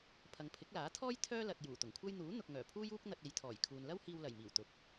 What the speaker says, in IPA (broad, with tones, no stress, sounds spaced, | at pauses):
pʰ ɐ˨˧ ŋ pʰ ɪ˨˥ k̚ l aː˨˥ t̪ʰ ɔː˥ j t̪ʰ œː˥ l ɐ˨ t̚ j uː˨˩ t̪ ʊ˨˩ ŋ kʷʰ ɐ˥ j n̪ uː˨˥ n̪ ʊ˨ k̚ ŋ œː˨˩ pʰ uː˥ j uː˥ k̚ n̪ ɐ˧ t̚ e˨˧ j t̪ʰ ɔː˨˩ j kʰ uː˨ n l ɐ˥ w h iː˧ w l ɐ˨˩ j m iː˨˩ w t̪ ʊ˨ k̚